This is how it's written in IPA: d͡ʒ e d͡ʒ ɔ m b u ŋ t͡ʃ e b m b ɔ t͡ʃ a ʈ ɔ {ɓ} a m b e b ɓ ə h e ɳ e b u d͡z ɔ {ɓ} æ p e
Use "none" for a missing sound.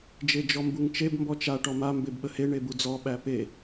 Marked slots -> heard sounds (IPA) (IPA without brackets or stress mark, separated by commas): m, ɓ